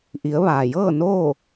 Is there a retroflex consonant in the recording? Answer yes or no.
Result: no